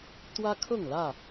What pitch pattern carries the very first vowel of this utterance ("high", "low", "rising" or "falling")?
high